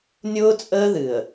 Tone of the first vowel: high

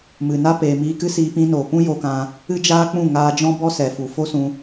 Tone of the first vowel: low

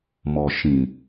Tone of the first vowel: low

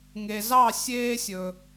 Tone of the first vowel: low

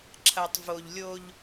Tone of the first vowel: low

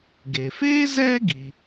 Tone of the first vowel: low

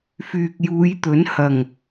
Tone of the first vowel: low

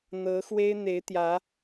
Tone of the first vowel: rising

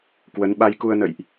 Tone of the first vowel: rising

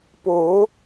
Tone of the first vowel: rising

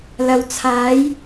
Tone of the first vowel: low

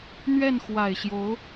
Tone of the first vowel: falling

